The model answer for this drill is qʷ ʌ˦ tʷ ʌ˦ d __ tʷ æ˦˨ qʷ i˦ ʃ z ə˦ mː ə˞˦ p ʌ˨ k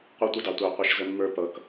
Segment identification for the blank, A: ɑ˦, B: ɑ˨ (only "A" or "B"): B